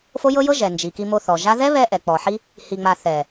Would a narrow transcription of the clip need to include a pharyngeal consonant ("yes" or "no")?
yes